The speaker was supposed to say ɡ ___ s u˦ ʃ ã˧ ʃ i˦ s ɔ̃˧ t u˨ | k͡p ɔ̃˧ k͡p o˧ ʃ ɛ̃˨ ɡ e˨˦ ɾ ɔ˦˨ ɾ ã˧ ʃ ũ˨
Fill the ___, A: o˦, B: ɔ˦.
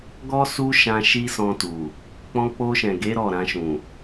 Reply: B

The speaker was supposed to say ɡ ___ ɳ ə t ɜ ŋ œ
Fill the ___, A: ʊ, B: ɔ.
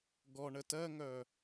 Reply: B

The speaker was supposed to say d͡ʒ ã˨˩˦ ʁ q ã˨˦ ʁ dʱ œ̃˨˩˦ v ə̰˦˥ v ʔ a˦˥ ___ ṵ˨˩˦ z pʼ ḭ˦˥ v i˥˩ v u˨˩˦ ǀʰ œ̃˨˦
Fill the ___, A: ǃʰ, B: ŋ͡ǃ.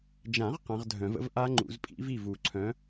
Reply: B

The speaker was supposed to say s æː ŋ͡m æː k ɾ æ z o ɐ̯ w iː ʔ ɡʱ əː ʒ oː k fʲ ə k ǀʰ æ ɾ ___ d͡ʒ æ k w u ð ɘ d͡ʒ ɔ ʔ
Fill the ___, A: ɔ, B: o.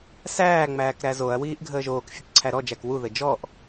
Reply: A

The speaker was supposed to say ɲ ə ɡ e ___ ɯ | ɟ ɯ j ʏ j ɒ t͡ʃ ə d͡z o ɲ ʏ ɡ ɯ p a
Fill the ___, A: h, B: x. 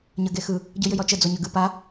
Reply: B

